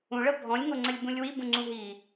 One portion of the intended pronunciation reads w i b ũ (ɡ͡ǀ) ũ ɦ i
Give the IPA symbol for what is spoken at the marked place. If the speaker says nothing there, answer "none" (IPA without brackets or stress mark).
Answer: ŋ͡ǀ